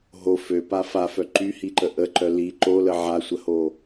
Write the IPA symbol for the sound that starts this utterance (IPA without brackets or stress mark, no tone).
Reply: ɦ